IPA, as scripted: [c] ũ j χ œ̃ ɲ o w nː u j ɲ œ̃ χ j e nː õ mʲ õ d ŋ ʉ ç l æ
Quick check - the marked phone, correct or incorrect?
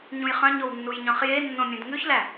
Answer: incorrect